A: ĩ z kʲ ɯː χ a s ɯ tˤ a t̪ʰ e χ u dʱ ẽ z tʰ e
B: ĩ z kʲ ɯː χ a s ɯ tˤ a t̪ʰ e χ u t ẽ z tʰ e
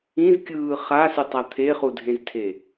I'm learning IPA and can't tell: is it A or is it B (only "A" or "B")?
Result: A